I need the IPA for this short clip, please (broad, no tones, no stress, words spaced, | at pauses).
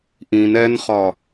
ʔĩn ɛnχɒ